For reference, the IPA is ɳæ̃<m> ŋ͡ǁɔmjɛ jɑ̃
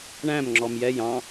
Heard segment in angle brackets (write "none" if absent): m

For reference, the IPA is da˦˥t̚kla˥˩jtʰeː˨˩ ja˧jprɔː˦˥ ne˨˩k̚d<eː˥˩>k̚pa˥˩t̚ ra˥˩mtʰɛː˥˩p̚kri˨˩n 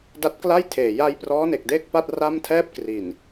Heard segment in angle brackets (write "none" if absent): eː˥˩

